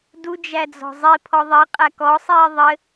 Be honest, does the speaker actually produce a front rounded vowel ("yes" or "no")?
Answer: no